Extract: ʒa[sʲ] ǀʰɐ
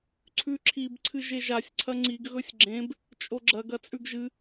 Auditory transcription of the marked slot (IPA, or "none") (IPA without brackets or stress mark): sʲ